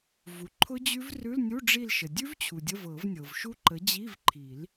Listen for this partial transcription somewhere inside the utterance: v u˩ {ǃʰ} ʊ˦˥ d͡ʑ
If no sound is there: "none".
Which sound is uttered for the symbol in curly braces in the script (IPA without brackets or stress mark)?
ǃʰ